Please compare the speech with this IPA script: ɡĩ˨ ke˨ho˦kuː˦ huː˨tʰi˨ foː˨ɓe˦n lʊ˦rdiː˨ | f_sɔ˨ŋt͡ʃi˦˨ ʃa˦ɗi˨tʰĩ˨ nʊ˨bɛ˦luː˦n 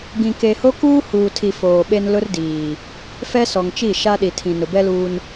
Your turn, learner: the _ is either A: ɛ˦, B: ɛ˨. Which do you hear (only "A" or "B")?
A